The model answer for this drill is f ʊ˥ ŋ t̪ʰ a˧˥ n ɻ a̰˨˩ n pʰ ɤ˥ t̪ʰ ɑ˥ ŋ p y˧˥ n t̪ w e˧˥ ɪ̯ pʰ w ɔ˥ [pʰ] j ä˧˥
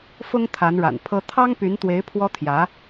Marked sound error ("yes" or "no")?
yes